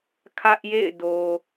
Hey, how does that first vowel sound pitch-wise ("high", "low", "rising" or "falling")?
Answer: high